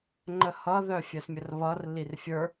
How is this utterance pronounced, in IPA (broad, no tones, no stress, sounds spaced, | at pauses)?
ŋ͡ǃ ə h ʌ ð œ fʲ œ s mʲ ə r β ʌ r l i r fʲ ə˞